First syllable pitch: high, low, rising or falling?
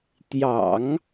low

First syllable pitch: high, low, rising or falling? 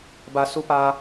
low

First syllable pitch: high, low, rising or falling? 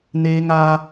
high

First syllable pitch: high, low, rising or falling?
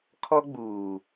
high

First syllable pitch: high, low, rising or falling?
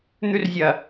high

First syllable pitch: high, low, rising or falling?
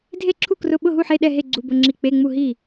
falling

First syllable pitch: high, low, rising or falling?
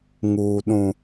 low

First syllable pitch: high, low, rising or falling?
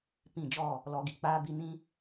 falling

